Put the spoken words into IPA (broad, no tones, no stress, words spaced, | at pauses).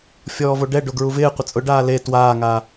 fʲɔːvoɖɛ ɖoɡɹuvɪːqʷɪ t͡sʼʊɖaː le twaːŋaː